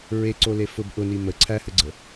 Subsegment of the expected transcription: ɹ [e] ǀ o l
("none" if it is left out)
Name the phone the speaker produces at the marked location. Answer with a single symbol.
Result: e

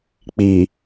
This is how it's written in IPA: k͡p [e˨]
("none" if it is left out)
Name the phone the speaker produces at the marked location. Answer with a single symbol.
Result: i˨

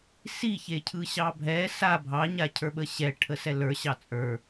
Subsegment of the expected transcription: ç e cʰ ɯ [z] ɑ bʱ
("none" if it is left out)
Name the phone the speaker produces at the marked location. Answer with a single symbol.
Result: ɕ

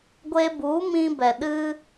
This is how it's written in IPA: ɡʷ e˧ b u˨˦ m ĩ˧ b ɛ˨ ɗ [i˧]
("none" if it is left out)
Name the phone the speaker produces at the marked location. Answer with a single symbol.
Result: ɨ˧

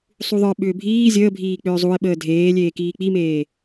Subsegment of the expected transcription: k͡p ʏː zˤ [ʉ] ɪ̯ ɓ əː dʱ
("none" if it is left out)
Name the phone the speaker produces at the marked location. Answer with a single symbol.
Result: u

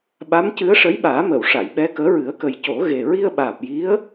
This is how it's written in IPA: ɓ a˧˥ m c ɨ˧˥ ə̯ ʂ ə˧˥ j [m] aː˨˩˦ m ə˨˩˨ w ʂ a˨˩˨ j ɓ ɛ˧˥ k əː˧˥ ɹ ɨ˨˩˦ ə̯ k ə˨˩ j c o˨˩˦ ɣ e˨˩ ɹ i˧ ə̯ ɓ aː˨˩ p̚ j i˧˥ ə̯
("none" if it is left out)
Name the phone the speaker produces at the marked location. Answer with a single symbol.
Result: ɓ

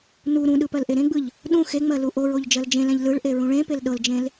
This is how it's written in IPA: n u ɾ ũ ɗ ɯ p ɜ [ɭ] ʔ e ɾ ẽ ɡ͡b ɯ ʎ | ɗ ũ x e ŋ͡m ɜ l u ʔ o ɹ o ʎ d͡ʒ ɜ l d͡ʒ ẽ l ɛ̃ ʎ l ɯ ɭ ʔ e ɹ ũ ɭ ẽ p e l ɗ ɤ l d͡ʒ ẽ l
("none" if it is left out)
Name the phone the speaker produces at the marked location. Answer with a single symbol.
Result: l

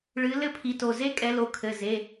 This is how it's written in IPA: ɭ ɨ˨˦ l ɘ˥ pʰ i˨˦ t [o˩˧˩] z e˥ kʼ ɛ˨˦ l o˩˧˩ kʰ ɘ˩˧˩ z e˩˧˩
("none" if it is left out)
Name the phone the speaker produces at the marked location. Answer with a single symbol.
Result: o˩˧˩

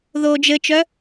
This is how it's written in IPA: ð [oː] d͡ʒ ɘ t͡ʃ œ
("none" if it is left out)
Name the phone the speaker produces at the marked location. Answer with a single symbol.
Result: oː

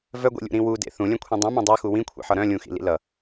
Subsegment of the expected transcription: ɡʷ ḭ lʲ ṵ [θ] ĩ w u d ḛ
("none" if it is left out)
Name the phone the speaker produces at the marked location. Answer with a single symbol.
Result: ɾ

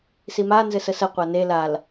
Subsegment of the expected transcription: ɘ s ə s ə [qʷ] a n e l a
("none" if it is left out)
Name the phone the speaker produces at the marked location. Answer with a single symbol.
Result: qʷ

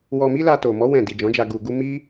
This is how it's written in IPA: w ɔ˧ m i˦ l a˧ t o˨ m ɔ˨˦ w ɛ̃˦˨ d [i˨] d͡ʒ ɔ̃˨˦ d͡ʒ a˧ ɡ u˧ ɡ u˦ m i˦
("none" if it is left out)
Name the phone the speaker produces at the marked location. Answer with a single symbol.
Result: i˨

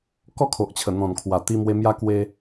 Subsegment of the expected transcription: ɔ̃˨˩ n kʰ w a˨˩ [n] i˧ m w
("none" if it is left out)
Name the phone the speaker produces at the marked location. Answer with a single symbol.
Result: t̪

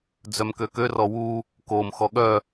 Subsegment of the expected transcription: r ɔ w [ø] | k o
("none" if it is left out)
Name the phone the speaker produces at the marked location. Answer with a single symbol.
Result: u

